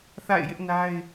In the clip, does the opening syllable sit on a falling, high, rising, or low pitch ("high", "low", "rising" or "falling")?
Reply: falling